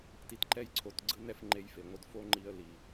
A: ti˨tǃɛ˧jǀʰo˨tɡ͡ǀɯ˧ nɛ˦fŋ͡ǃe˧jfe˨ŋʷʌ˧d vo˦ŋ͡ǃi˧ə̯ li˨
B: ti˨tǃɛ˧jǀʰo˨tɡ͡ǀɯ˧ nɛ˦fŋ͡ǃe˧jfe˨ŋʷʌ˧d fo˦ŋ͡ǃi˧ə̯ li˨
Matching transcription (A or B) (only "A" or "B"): B